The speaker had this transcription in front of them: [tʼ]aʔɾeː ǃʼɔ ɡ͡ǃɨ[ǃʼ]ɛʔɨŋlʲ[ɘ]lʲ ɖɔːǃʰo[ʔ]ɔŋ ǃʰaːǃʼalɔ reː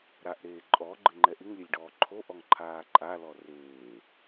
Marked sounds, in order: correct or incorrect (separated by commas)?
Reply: incorrect, incorrect, correct, correct